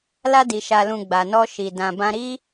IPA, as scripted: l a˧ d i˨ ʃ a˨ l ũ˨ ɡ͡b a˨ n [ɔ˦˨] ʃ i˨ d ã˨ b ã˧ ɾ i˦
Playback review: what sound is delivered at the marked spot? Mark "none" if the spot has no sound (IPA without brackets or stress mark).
ɔ˧